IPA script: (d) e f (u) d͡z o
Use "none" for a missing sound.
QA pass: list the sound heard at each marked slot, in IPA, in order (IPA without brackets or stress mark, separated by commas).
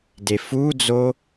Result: d, u